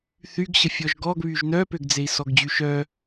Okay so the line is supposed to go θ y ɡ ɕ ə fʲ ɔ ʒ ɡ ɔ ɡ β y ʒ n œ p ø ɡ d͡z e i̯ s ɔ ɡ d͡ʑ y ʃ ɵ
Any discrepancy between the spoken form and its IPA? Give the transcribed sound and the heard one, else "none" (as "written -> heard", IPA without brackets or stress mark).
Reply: ɵ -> œ